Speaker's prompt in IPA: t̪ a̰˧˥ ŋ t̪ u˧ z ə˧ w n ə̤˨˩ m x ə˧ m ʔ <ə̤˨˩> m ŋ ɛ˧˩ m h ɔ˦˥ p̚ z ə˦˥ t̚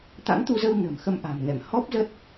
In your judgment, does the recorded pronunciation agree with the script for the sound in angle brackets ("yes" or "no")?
no